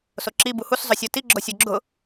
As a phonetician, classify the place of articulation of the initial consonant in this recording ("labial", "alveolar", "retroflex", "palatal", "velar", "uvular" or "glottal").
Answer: alveolar